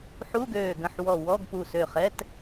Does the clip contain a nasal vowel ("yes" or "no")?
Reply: yes